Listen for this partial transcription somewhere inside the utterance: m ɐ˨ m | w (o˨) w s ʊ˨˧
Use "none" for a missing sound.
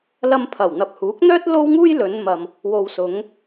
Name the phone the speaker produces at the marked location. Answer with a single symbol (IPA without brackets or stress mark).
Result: o˨